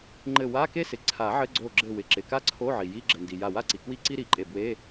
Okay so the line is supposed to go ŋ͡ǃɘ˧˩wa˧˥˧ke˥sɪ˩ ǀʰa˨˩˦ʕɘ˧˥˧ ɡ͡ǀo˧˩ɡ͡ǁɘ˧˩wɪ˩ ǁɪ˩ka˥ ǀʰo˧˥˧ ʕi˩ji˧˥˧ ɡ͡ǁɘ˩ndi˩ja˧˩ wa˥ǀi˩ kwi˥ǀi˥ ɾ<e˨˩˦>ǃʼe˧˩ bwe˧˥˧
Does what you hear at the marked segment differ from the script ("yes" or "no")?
yes